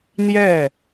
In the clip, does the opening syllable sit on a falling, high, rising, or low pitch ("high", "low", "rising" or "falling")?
falling